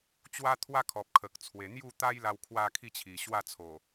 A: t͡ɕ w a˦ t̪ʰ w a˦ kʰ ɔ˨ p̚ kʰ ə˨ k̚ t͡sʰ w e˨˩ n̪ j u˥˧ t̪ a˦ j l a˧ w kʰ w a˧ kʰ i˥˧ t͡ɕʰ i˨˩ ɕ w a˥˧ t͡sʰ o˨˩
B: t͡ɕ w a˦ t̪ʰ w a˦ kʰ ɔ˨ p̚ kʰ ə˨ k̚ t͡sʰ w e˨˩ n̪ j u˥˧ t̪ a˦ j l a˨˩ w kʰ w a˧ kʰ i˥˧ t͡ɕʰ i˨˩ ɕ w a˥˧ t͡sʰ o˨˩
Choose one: A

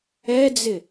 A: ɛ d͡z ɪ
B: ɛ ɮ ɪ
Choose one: A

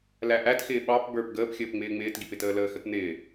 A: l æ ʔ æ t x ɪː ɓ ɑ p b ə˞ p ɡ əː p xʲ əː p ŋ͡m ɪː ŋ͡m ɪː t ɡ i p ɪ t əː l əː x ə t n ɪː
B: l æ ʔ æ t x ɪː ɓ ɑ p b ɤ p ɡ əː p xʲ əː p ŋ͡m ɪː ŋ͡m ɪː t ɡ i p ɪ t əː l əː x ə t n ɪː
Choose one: A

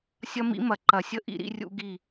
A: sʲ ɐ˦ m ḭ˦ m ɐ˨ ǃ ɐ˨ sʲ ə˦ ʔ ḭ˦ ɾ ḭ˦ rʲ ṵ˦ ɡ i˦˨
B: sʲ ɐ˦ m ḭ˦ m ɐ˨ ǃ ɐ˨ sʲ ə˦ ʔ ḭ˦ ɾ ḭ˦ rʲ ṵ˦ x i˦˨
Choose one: A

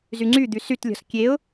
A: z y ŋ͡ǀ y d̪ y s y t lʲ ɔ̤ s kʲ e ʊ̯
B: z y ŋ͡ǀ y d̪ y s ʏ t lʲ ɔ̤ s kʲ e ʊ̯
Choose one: A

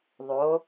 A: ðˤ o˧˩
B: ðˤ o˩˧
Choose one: B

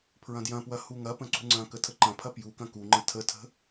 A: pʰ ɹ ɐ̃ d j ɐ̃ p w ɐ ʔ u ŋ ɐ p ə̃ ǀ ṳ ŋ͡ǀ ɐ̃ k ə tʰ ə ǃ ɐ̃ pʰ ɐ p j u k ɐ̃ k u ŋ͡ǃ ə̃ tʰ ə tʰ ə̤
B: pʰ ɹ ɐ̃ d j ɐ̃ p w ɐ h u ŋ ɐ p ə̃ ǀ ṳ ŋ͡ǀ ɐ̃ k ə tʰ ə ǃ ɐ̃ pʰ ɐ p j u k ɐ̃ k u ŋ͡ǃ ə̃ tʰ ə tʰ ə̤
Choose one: B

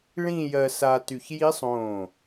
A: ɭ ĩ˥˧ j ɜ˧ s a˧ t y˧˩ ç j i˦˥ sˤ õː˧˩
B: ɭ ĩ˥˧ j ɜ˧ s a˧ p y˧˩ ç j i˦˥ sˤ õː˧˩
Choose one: A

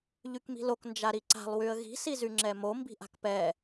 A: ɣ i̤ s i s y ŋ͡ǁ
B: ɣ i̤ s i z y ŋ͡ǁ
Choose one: B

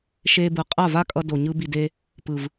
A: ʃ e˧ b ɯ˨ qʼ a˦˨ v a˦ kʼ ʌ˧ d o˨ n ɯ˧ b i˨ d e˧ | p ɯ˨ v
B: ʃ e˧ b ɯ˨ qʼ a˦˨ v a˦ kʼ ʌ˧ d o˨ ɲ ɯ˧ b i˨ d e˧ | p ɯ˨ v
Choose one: B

